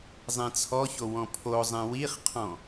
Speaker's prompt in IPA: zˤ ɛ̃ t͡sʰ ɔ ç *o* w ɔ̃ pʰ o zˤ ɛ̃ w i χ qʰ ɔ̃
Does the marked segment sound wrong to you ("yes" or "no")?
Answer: no